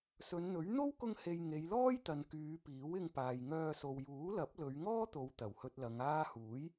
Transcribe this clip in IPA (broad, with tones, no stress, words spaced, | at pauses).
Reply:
sɵ˨˧nn̪ɵ˨˥ɥ n̪o˥wkʊ˧ŋhe˨j ŋe˨˧jlɔː˥jt̪ɐ˨n kyː˨˧piː˨˥w ɪ˧ŋpaː˨jŋœː˧ so˨wjuː˨˥lɐ˨˥p̚ lɵ˨˧ɥŋɔː˥t̪o˨˧wt̪ɐ˨˩w hɵ˧t̚lɐ˨˧ŋaː˥ huː˨˥j